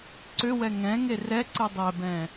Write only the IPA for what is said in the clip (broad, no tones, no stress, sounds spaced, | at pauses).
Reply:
ǀ ʏ w ɛ ŋ ɛ̃ ŋ e r ɛ ǀ ɨ dˤ ɛ b ɛ̃